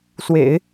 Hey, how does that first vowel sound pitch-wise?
low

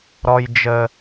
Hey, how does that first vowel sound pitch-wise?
low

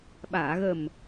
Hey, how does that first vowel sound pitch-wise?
low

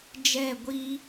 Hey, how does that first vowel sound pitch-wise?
falling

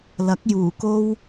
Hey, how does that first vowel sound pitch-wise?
rising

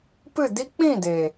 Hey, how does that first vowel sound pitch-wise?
falling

